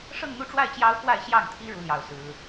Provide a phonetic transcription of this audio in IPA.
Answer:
ʂɤ˥˧ŋn̪u˥˧ʈ͡ʂwa˥˩ɪ̯ t͡ɕjɑ˥ʊ̯kwa˥˧ɪ̯ɕjɑ˥˩ŋt̪ʰi˥ ɻu˥ljɑ˥˩ʊ̯sɹ̩˥

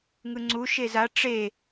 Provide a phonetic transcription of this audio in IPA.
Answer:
ŋɯŋ͡ǀu ʃeza ʈ͡ʂe

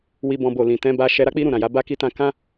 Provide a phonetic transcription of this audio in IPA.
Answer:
wi˦bɔ̃˦bo˦˨ lĩ˨ tɛ̃˨˦ba˧ ʃɛ˧ɾa˦k͡pi˦ ɾũ˦˨ɾã˨ja˨˦ ba˦ki˦tã˦ kã˦

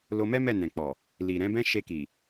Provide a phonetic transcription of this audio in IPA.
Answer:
lo˧mɛ˦ mɛ˦˨nɛ̃˨k͡pɔ˨ | li˨ɾɛ̃˨˦ bɛ̃˦ ʃe˧ki˨

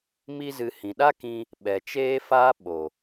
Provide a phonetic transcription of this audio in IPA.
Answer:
mi˧zɨ˨ hĩ˨ɗa˦kĩ˧ | ɓɛ˨t͡ʃeː˦faː˦ ɓo˨

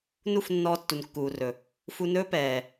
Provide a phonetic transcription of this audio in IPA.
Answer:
nu˦˨fnːɔː˧ tːu˨nkːuː˨rɵ˨ | fu˧nɵː˦pɛː˨

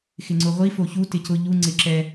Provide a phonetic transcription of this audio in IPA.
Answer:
xɪŋ͡ǀʊʁʷi foçu tɪcʊ ʎu ŋ͡ǀɪǁɛ

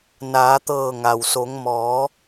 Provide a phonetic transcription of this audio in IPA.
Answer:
naː˩˧t̪ɤː˧˩ ŋa˩wso˩˧ŋmɔː˩˧

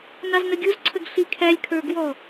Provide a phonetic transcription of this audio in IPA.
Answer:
nɑznəɡʲuzǀʰəɡ ɬikʰælʲkʰə˞ ɡwɔ

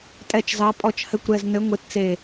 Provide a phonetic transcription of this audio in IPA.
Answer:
tʼɛ˧˩t͡ʃzɑ˨˦pʼɔ˧˩t͡ʃ hɘ˧˩kʷɾɛ˧˩znɘ˨˦ ŋʷe˨˦t t͡se˧˩

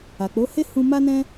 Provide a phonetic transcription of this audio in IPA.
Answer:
a˨k͡po˨˦he˦ hũ˦ ma˦nɛ̃˦

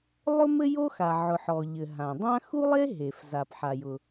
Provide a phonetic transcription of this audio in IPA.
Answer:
lˠʊ˥mɘ˥jo˥xa˩ ʕʊ˩ħɔ˩ʎɘ˩ ɦã˩dˤã˥ xu˥lˠe˥ɦe˩f za˩pħa˩jʊ˩

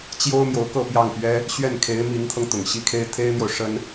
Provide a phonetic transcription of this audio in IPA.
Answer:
t͡ɕjo˥ʊ̯ mjo˧˥ʊ̯kɤ˥˧pjɑ˥˩ŋ pɥɛ˥ | ɕɥɛ˥˩nkʰe˧˥ɪ̯ mi˧˥ŋt̪ʰɤ˧ŋ t̪ʊ˨˩ŋɕi˥kʰe˥ɪ̯ t̪ʰe˥ɪ̯n̪jo˨ʊ̯ ʂə˥n

